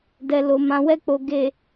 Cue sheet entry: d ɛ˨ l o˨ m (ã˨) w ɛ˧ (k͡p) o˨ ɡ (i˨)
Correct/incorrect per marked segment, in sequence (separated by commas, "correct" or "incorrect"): correct, correct, incorrect